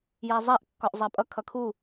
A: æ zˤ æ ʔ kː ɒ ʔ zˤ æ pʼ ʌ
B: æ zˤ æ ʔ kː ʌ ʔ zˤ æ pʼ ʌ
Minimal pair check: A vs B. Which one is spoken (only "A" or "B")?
A